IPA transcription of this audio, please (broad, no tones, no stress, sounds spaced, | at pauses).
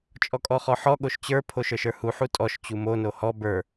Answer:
t͡ʃʼ ɔ kʼ ɔ χ ɔ ħ ɔ ɠ o ʃ t͡ɕ ə˞ pʰ o ʃ ə˞ ʃ ə˞ h u ħ u tʼ ɔ ʃ t͡ɕ u m o n o h ɔ b ə˞